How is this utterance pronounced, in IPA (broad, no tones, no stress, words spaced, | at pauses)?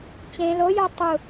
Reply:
t͡ɕẽ lojo tˤu